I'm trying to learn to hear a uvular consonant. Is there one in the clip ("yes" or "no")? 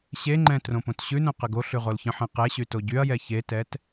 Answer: yes